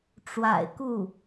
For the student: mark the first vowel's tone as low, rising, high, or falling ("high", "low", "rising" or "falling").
low